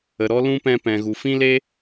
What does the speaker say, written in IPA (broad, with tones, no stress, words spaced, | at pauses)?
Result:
ə˨ɾɔ˦ lũ˦pɛ̃˧pɛ̃˨ ɣu˨fĩ˦le˦